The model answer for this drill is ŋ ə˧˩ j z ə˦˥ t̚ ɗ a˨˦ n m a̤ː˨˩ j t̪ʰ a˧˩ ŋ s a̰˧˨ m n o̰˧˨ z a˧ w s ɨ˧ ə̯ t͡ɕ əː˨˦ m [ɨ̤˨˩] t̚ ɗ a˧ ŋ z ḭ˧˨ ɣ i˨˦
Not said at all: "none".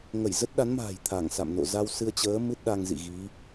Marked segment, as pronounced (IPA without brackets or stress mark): ɨ˦˥